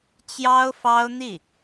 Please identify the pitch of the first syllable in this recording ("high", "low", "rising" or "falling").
high